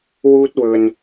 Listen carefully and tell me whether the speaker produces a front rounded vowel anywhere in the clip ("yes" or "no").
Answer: no